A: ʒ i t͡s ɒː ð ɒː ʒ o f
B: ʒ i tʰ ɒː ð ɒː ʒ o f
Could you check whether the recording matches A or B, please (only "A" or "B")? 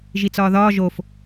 A